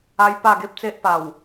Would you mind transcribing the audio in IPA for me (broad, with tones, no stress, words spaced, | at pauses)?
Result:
a˦jpa˥˧ɡe˦p̚t͡se˦ʔ pa˨˩w